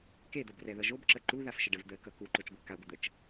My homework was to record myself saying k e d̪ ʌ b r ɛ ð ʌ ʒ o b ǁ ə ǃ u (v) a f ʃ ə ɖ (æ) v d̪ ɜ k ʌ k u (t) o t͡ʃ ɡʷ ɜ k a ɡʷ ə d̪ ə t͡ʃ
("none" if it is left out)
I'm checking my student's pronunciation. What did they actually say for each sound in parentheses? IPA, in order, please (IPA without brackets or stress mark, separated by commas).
ð, ə, ǃ